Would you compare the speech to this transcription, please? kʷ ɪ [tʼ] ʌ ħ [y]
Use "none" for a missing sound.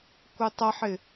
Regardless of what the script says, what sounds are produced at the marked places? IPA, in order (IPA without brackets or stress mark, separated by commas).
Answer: tˤ, ɪ